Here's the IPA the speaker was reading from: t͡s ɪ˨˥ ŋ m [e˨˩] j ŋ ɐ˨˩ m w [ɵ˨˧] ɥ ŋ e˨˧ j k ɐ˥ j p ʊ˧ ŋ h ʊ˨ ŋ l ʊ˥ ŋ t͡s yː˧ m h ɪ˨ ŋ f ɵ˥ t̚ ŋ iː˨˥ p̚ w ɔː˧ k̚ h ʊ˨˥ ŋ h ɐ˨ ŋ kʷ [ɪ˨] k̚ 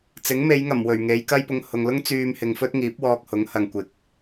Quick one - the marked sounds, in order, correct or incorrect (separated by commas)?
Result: incorrect, incorrect, correct